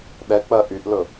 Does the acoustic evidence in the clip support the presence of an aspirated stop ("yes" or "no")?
no